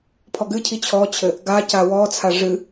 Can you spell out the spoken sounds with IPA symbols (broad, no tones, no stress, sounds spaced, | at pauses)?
pʰ ɔ ɡ ɨ cʰ i t͡ɕʰ ɔ t͡ɕʰ ɘ | ɡ a c a w ɔ t͡sʰ a ʐ ɨ